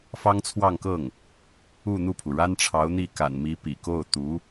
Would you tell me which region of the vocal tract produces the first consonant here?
lips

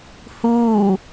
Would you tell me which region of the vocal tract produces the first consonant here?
throat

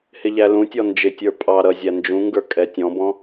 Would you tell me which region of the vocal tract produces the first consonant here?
throat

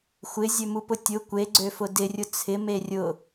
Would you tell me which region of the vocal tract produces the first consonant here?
velum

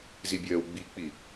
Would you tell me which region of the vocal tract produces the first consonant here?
tongue tip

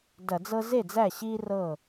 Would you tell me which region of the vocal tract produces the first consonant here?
tongue tip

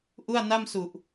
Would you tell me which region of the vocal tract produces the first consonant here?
throat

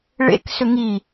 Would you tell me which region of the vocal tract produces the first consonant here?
retroflex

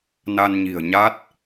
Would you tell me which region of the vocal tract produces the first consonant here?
tongue tip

